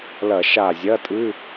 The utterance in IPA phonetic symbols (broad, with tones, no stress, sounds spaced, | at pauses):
l ɐ˧˩˧ ʃ a˧˩ zʲ ɐ˧˥˧ tʼ ɨ˧˥˧